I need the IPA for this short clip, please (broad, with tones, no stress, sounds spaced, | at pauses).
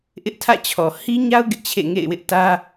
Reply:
ʔ ɪ˦ ʔ tʰ ä̰˦˨ t͡ɕʰ ɔ˨ h i˦ ɲ a˦ ʊ̯ ɡ ɪ˦ ʔ t͡ɕʰ ḛ˦˨ ŋ ḛ˦˨ ɪ̯ w ɪ˦ ʔ t ä˦